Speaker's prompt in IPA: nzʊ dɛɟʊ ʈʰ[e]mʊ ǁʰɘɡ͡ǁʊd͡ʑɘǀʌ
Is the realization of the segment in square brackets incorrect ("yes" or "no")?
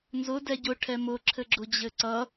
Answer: yes